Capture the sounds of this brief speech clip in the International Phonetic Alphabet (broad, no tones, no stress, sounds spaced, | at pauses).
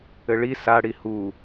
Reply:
ɘ ɭ i s a ɽ i h u